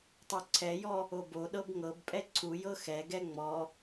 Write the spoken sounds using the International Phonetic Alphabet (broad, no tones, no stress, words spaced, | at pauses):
tˤoǀʰɛjɔ | oboɗɤb ŋɤbpʼɛ ǀʰujɤ xɛɡɛ ŋ͡mɔ